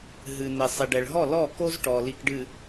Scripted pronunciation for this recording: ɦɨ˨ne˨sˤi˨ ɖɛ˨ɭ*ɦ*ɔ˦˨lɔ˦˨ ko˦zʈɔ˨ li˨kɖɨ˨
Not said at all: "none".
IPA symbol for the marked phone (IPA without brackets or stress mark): ɦ